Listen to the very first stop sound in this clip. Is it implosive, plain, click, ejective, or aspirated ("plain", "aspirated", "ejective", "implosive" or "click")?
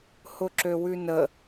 click